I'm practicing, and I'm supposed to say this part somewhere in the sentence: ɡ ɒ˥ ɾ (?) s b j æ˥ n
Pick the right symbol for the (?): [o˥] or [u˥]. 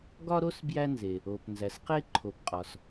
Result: o˥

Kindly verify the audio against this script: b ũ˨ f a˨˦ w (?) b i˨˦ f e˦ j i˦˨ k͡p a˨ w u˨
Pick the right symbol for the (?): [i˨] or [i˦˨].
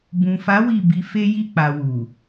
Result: i˦˨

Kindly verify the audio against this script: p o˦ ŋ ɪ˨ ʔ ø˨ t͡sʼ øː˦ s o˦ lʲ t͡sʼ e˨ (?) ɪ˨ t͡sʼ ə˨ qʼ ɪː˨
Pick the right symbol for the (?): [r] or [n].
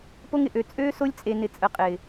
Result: n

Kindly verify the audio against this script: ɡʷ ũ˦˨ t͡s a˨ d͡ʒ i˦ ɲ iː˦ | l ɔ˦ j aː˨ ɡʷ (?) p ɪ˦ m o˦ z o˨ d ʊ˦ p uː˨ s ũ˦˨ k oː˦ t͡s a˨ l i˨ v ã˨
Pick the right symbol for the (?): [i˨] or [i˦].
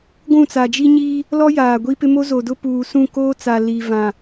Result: i˦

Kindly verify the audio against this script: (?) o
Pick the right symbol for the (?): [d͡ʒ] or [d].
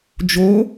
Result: d͡ʒ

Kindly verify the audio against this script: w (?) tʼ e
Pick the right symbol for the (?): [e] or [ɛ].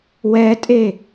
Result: ɛ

